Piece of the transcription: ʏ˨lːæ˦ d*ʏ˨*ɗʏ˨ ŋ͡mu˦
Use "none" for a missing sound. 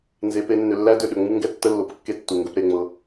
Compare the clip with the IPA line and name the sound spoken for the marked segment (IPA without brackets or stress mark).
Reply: ʏ˧